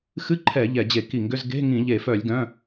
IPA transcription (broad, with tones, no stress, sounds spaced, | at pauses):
x ɨ˧˥˧ ǃʰ ɛ˧˩˧ ʎ ɛ˧˩˧ d͡ʑ e˧˩˧ k i˧˩˧ ŋ ɡ ʏ˧˥˧ z ɡ e̤˧˥˧ ŋ ĩ˧˩˧ ʎ e˧˩˧ f œ˧˩˧ lʲ ɡ œ̃˧˥˧